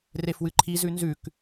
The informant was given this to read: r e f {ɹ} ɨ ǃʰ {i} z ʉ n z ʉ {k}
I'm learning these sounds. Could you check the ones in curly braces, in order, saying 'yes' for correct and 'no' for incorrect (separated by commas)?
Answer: no, yes, yes